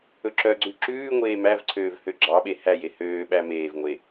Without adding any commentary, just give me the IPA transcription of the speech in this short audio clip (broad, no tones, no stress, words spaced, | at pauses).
ɵǁœɡ͡ǀʉ ǁʉːŋʷeː mævǀʰøːv høɡ͡ǁɑɓe hæje høːɓæ meːvŋʷe